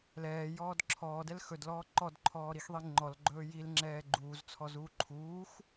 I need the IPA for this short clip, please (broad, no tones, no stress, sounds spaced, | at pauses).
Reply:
l ɛː j ɔː d ǁʰ ɔː d ɛ l x ɵ d l ɔː ǃ ɔ d ǃʰ ɔː ɾ i x ðˤ i ŋ͡ǃ ɔ l ɡ͡ǃ ɵː j i l ŋ͡ǁ ɛː ɡ͡ǃ uː z t͡sʰ ɔ z uː ǃʰ uː x